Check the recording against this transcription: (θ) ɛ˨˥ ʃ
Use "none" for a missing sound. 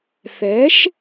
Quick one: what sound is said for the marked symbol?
θ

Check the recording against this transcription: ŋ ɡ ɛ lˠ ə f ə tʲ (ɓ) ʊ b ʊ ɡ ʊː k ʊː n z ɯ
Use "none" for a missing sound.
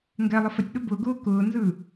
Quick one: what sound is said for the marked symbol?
ɗ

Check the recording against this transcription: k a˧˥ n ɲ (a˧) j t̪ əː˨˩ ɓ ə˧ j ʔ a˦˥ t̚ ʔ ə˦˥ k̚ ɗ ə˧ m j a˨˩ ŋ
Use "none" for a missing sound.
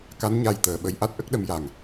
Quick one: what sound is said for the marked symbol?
a˧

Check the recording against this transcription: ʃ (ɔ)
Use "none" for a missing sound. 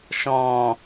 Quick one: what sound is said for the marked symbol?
ɔ̃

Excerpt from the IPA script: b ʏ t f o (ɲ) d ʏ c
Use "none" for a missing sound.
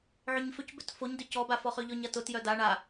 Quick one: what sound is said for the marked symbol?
ɲ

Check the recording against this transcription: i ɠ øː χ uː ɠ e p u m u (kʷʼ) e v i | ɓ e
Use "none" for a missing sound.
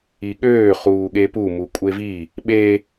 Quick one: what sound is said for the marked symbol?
kʷʼ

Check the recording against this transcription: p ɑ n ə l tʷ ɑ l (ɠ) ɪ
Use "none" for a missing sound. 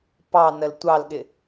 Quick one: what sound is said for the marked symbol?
ɠ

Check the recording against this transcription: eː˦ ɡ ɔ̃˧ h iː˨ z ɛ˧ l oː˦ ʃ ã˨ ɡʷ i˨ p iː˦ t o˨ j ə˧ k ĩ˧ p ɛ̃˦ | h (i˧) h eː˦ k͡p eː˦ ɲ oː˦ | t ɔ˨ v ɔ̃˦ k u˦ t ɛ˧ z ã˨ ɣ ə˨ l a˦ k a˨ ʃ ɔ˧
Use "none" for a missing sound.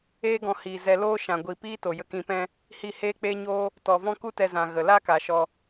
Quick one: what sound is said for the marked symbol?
i˦˨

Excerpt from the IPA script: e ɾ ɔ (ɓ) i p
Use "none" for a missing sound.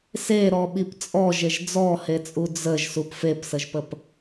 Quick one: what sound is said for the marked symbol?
ɓ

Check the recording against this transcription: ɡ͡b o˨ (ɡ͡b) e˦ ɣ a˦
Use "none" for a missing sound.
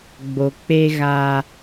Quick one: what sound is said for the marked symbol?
k͡p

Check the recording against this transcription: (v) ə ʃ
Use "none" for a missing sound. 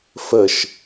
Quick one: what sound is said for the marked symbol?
f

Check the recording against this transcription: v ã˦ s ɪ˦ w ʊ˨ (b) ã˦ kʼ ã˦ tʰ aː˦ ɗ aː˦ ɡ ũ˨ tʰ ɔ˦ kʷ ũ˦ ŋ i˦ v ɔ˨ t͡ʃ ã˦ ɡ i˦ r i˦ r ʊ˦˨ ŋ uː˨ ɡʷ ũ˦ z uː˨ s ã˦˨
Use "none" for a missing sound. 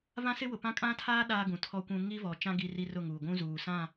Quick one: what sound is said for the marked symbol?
p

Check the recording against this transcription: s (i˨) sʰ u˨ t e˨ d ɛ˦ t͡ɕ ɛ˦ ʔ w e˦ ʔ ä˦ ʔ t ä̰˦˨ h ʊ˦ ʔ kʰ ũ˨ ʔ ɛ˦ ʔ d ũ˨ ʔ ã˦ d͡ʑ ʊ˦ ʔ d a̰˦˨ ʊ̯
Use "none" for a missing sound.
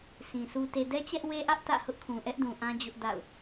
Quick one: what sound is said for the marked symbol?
ĩ˨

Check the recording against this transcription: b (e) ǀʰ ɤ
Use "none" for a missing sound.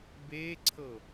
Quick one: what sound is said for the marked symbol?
e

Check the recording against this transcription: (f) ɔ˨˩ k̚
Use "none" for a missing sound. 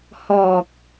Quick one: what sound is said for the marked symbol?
h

